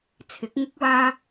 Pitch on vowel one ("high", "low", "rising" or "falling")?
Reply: rising